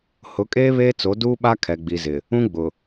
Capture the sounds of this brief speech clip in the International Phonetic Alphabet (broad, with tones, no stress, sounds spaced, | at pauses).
h ʊ˨˦ kʼ eː˦ β eː˦ t͡s o˨˦ d uː˦ ɓ a˦ kʰ ɛ˨ ɡ͡b i˨ z ɪ˨ | ũ˦ ɡ͡b ʊ˨